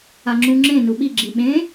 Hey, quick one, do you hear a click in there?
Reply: yes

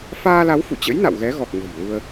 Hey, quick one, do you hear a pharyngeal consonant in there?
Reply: no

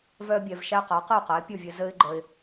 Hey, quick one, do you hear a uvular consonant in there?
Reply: yes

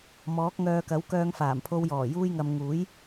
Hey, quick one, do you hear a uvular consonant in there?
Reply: no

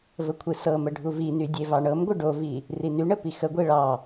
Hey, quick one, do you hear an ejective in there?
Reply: no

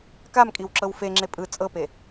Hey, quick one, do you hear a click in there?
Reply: yes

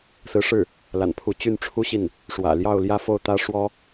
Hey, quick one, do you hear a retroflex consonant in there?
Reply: yes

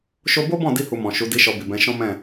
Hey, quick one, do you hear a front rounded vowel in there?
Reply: no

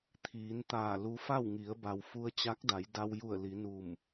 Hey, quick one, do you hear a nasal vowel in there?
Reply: no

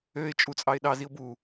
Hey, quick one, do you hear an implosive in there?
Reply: yes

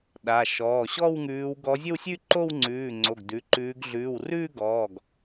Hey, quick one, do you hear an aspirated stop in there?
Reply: no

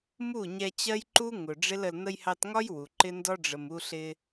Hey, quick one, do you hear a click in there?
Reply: yes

